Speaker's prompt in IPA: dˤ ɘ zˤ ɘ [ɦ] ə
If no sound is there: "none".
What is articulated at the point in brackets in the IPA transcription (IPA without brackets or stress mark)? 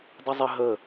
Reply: ɦ